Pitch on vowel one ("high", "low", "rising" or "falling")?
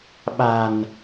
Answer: low